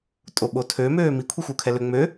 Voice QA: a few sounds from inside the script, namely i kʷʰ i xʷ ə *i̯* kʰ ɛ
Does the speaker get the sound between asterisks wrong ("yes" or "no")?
yes